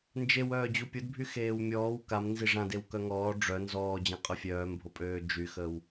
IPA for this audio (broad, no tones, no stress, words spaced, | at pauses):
nd͡ʒew œːd͡ʑupʲodbʱy xeːwmʲɔːw kam nziʐãdew kœŋɔː ɖ͡ʐœ nzɔːd͡ʑãqʼœ fʲœːmbʱopʼøː d͡ʒyxəw